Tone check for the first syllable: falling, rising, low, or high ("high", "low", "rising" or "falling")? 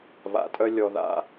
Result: low